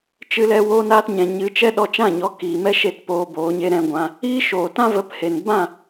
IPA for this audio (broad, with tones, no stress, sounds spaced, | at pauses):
t͡ʃ ɨ˧ l ɛ˧ w oː˧ n aː˧ t ɲ ɛ̃˨ ɲ ɨ˨˦ t͡ʃ ɛ˦ ɗ ɔ˧ t͡ʃ ã˦˨ ɲ ɔ˨˦ k iː˨ m ɛ˦ ʃ e˦˨ t p oː˧ b oː˨˦ ɲ e˦ ɾ ɛ̃˧ ɡʷ ã˧ | iː˦ ʃ oː˨ t ã˦ v ə˨˦ p h e˨ n b ã˦˨